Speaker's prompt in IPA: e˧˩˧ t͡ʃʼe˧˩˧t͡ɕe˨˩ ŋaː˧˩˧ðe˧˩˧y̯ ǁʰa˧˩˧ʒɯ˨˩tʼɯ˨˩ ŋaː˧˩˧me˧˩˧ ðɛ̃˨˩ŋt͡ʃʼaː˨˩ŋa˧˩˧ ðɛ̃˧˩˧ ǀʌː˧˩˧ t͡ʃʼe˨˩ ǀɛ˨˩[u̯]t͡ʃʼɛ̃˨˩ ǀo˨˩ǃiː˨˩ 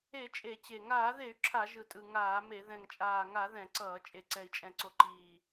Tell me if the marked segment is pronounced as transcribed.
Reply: no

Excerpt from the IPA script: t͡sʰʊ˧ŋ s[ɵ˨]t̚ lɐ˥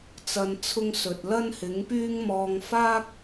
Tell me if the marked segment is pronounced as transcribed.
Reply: yes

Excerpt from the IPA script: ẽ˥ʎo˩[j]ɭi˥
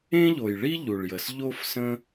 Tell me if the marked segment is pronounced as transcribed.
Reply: yes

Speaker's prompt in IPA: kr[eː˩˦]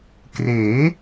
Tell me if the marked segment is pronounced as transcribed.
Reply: yes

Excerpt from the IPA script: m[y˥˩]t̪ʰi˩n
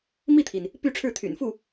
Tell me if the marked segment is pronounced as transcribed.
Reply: no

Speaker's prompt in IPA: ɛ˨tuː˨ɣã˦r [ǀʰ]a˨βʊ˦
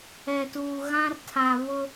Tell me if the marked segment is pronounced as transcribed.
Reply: no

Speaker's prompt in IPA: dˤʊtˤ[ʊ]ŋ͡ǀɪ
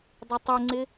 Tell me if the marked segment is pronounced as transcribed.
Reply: yes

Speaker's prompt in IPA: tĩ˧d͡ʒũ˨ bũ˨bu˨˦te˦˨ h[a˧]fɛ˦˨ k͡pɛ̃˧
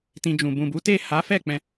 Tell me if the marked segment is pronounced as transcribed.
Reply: no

